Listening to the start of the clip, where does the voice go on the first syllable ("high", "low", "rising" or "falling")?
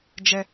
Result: high